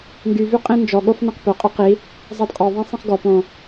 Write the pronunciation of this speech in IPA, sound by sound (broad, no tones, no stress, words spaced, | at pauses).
ŋɡyvy qʼĩnd͡ʒɔɠof nɛ̃qpœqʼœ qi | zˤɑdqʼɔðˤɛ̃ sˤĩχɡɔpõ